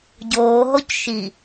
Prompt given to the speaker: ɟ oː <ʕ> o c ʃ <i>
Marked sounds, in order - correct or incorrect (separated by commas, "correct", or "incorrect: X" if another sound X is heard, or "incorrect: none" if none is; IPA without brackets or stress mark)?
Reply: incorrect: ɦ, correct